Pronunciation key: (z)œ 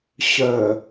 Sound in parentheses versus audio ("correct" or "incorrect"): incorrect